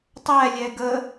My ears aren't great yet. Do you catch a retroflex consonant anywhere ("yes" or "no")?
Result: no